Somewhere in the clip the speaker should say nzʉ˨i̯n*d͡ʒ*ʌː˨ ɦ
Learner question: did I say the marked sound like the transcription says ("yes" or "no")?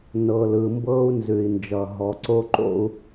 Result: yes